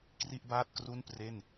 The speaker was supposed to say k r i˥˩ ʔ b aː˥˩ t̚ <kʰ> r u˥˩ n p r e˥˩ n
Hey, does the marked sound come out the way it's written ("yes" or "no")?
no